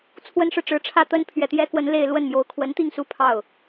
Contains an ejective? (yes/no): no